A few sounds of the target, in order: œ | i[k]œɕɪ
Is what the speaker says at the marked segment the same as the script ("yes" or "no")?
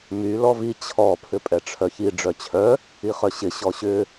no